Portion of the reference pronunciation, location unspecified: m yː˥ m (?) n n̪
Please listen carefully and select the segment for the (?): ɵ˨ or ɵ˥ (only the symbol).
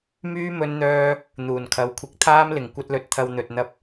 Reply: ɵ˥